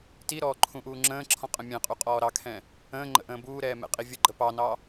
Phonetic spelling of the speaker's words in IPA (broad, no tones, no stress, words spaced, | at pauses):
tiɾɔː ǃʰũʔuːŋ͡ǁə̃ːǁʰɔ̃ qʼə̃mʲɛ̃qʼu qʼɔːɾɑkʰɛ̃ | ə̃ː ŋ͡ǃə̰ʔə̃ːbuːɾɛː mɛ̰qʼivʲəɡ͡ǃə pɑnɑ